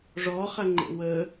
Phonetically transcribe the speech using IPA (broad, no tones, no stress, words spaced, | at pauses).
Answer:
ʐɔχɐ ŋ͡ǃḛwə